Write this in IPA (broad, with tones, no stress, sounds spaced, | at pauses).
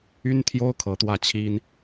y˥ n t̪ʰ j o˥ ʊ̯ kʰ ɤ˧˥ t̪ w ä˥˩ t͡ɕʰ i˥ n